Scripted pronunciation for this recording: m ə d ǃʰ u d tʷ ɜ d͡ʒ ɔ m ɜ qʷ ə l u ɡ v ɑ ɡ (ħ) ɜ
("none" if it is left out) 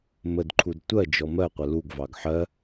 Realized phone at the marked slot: ħ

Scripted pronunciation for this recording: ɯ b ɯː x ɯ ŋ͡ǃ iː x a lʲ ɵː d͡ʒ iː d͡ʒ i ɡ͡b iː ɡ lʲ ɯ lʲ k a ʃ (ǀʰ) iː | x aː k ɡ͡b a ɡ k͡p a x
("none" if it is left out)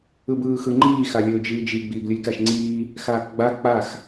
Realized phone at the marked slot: ŋ͡ǀ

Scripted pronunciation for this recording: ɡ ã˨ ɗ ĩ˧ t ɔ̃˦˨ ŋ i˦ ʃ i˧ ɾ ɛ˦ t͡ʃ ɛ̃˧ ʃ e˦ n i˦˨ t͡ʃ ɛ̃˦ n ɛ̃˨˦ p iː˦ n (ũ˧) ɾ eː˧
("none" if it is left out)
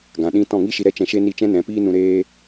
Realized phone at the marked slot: ũ˧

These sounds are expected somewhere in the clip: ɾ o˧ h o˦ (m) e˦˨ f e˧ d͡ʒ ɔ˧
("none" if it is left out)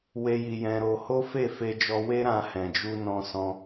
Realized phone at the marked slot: f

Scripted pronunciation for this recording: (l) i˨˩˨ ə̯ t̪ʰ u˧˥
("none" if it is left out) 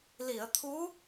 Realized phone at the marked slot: l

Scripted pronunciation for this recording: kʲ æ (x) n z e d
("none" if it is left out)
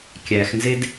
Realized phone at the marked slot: x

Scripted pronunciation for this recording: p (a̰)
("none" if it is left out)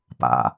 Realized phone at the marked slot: a̰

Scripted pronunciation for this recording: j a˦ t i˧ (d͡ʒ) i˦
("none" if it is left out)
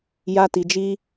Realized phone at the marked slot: d͡ʒ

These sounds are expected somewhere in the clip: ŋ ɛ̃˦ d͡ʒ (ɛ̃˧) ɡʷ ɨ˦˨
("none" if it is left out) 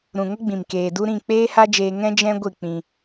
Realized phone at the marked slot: ɛ̃˦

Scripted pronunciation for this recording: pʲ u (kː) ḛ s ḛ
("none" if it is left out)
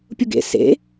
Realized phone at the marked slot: ɡ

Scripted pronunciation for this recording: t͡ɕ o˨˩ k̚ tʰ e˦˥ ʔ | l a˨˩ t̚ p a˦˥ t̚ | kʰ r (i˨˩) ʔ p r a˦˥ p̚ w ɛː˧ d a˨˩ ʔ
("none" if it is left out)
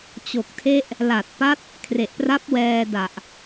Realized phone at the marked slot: e˨˩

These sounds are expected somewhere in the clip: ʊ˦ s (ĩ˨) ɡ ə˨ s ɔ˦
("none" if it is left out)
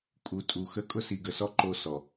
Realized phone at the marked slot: i˨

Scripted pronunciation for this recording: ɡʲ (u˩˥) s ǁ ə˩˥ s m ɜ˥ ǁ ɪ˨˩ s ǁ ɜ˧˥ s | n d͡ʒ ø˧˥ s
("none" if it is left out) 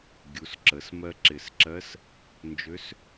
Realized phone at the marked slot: u˩˥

